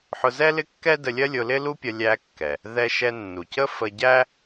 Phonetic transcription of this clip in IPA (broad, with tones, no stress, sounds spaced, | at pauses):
ħ ʊ˧ z ɛ˥ l ɪ˥ kː ɛ˥ d ə˧ lʲ ɜ˥ lʲ ʊ˧ l ɪ˥ l u˥ pʲ ʌ˧ lʲ æ˧ kː ɛ˩ | ð ɛ˧ ʃ ɛ˧ nː u˩ c ə˥ f ə˧ ɟ æ˥